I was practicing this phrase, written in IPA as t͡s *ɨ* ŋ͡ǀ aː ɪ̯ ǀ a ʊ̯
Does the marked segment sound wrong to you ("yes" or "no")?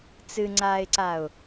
no